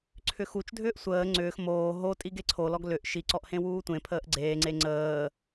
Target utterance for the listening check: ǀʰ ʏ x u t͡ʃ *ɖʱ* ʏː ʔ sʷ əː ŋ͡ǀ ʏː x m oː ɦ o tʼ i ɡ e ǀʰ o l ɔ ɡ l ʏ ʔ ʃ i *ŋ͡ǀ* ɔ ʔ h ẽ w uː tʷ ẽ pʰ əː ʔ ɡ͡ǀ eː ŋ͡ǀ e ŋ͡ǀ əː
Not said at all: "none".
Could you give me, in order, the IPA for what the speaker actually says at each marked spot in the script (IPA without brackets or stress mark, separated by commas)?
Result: dʱ, ǀ